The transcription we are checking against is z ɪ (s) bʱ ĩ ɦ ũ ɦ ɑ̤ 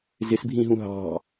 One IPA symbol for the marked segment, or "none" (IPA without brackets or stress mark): s